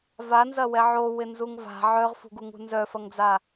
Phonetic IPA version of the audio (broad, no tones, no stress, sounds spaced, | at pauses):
v a n z ɐ w ɛ ʕ o w ɪ n z u ŋ v a̤ ʕ œ ʁ f ṳ ɡ u ŋ ṳ n z œ f ɐ ŋ d͡z a